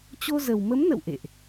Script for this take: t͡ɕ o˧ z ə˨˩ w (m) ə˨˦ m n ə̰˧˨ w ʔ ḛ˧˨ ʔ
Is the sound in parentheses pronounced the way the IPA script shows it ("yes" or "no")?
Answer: yes